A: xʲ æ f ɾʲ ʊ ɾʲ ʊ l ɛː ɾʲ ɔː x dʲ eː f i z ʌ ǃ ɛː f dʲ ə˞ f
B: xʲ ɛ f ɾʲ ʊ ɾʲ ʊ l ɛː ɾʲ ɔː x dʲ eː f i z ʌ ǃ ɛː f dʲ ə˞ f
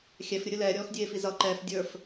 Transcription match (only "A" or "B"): B